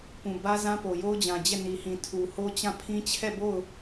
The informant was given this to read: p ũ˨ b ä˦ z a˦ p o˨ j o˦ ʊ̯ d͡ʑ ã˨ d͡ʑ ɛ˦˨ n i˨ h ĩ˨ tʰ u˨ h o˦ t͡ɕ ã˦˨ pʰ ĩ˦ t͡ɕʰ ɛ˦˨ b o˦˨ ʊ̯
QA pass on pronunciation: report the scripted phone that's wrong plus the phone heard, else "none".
a˦ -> ã˦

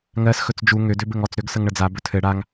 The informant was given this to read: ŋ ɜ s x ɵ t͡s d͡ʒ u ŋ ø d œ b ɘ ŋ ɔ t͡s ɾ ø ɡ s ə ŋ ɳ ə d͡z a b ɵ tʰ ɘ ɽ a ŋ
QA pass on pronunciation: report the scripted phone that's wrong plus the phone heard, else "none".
œ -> ø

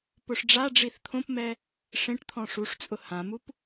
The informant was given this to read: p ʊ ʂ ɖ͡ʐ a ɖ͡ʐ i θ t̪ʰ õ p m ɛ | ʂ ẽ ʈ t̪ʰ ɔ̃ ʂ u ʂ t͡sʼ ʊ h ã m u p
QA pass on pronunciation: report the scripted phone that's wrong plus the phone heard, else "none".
none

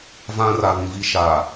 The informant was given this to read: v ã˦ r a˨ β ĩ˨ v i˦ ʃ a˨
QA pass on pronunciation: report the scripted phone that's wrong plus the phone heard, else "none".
none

